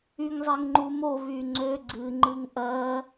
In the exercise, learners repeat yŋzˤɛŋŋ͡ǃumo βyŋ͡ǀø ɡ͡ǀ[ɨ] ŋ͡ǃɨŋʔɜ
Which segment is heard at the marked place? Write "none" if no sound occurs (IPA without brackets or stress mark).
ɨ